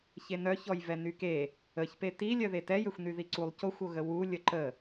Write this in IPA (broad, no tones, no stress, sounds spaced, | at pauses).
ç e n œ ç ɔ j v ɛ n y k e | ə ç p e t i lʲ œ ð e t ɛ j ø xʷ n y ð i ǀ u lˠ c o xʷ o ɣ ə w u lʲ ə ǃ ə